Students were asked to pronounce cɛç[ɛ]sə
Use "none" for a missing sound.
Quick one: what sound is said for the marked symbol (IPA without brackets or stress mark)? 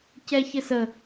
ɘ